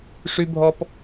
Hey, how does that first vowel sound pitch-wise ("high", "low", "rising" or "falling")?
high